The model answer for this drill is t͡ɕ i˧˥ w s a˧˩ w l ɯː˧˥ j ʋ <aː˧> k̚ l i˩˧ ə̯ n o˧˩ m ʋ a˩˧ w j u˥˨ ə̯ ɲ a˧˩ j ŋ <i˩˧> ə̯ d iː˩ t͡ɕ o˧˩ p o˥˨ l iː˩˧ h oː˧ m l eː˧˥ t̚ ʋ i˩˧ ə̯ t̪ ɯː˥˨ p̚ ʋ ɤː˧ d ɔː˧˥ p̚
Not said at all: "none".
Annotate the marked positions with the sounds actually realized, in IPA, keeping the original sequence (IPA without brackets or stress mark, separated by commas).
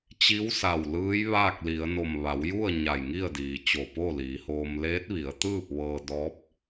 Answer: aː˥˨, i˥˨